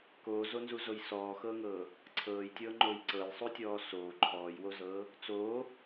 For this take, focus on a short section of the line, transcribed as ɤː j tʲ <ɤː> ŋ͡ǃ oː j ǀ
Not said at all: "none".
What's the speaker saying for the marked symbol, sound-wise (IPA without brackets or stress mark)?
ɤː